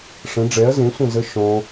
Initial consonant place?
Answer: retroflex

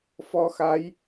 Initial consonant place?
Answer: labial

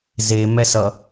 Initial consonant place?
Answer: alveolar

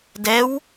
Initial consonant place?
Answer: alveolar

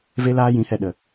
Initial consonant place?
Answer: labial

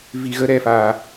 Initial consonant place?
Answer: labial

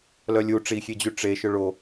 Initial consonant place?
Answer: alveolar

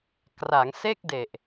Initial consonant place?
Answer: velar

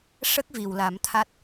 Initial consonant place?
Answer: retroflex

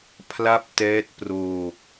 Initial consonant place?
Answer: labial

